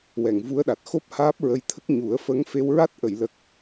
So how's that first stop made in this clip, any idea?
implosive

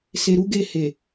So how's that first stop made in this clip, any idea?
plain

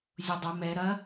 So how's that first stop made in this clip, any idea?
plain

